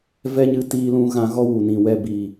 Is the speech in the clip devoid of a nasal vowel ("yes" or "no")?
no